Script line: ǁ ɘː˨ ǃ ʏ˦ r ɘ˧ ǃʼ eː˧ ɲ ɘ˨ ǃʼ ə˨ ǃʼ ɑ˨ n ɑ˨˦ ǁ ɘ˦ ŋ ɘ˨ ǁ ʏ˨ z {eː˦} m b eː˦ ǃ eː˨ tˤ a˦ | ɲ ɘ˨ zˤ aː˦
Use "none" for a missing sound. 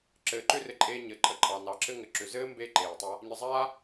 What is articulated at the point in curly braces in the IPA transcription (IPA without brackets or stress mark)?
ɘː˦